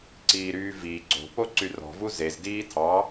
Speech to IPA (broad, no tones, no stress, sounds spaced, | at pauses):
ǀ iː ɾ yː v i ɡ͡ǀ o̤ p o ǀ y r ɔ̤ v u z e z d iː tʰ ɑ